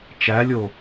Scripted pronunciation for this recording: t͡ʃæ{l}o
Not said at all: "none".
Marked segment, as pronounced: lʲ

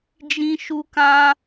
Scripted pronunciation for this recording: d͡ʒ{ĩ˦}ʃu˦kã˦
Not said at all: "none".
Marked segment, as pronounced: ĩ˦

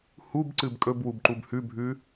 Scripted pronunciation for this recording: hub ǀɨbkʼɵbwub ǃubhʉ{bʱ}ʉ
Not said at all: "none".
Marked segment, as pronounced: bʱ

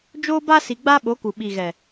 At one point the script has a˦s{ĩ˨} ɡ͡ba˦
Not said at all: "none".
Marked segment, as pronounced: i˨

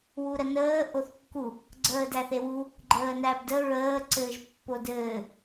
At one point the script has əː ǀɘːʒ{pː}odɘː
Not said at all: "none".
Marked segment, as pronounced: pː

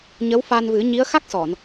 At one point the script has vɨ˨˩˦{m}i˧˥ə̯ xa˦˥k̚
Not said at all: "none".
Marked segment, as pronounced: ɲ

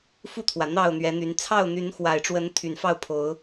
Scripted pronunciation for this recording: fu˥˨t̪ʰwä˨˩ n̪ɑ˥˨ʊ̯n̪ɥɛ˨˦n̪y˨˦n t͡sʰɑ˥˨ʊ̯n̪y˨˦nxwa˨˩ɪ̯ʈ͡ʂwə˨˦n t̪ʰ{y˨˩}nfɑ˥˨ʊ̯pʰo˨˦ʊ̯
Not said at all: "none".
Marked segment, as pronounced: y˨˩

